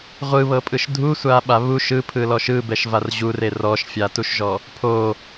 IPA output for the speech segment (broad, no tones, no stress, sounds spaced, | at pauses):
ʁʷ ɯ β ɤ pʼ ɯ ʃ dʱ u sʷ a ɓ a β u ʃ ɯ pʰ ɯ l ɔ ʃ ɯ b ɛ ʃ v a r ʑ u r e r ɔ ʃ fʲ a t u ʃ ʒ ɔ | pʰ o